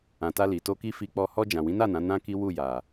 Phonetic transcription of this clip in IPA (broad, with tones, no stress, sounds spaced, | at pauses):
ã˨ t a˧ l i˨ t o˧ k i˦ f i˧ k͡p ɔ˧ h ɔ˧ d͡ʒ ã˨ w ĩ˨˦ n a˦˨ n ã˨˦ n ã˦ k i˦ w u˦˨ j a˨